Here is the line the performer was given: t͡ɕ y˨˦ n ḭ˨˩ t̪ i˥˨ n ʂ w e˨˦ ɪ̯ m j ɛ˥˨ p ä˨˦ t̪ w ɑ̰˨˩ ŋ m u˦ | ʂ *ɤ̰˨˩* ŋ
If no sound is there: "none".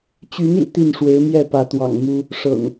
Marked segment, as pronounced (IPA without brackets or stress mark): ɤ̰˨˩